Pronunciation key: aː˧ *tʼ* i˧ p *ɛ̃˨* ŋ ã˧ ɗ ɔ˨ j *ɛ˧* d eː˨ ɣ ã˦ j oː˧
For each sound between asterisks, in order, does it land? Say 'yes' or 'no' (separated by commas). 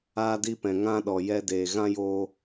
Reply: no, yes, yes